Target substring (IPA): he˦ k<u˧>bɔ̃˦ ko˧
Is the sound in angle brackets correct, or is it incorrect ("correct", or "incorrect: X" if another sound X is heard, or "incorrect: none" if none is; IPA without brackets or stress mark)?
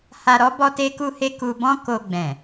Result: correct